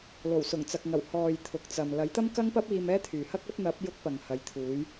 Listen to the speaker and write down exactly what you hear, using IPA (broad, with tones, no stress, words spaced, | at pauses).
lo˨˩wsʊ˨˩ŋt͡sɐ˨k̚ŋɐ˨˩w hɔː˨j t̪ʰʊ˨k̚t͡sɐ˨m lɐ˨˥jt̪ɐ˥mkɐ˥ŋpɐ˥p̚ iː˧mɛː˥t̪ʰyː˨hɐ˥k̚ ɐ˨˥p̚n̪ɐ˨˥p̚ jʊ˥k̚pɐ˨ŋhɐ˨˥j t̪ʰuː˨˥j